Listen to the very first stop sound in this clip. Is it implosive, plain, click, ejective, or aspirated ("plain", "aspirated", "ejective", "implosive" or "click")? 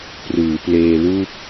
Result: plain